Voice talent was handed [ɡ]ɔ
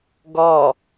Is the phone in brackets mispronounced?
no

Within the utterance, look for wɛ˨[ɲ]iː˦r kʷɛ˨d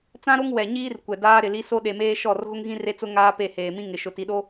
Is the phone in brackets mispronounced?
no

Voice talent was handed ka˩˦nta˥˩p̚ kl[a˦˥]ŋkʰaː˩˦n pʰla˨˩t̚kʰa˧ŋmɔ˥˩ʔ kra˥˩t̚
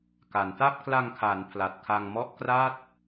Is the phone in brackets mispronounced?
yes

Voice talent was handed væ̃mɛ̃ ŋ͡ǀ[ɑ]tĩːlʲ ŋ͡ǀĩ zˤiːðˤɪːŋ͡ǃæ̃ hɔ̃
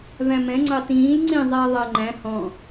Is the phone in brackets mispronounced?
no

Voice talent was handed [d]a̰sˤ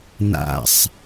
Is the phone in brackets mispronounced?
yes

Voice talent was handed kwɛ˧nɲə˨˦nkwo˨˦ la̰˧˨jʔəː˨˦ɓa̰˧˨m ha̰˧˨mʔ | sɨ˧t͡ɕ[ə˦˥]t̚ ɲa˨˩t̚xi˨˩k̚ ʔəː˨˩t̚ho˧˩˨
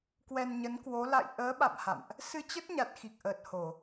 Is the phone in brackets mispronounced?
no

